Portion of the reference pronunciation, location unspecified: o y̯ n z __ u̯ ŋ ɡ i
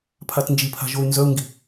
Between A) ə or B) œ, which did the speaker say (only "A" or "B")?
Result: B